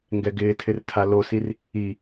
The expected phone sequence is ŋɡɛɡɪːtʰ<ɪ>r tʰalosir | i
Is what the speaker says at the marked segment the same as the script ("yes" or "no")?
yes